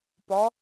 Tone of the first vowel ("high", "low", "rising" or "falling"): rising